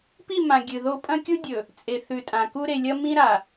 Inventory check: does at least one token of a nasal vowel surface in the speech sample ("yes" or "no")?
yes